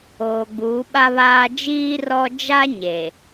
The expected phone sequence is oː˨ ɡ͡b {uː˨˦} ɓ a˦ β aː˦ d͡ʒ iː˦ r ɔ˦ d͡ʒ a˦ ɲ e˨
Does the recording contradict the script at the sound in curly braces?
no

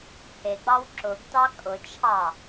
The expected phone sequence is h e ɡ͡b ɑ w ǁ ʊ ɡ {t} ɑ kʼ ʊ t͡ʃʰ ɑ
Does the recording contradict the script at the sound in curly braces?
no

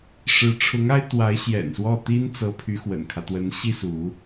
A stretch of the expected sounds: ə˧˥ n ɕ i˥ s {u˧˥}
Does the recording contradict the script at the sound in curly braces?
no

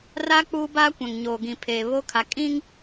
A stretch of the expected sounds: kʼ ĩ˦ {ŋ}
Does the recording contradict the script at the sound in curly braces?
no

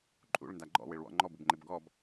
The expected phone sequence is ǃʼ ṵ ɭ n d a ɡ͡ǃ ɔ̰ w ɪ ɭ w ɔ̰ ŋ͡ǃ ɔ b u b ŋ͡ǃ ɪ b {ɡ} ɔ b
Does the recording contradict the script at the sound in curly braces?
no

